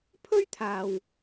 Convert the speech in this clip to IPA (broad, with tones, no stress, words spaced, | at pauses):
pʰɵ˥ɥ t̪ʰaː˨w